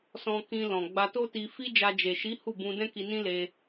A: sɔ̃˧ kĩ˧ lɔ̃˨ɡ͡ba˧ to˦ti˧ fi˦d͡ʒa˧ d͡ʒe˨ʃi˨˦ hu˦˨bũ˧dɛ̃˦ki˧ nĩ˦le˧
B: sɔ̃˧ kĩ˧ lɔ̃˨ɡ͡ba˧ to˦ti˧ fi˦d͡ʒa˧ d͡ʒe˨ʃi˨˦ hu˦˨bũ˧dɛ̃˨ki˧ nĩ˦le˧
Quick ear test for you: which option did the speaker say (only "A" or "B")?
A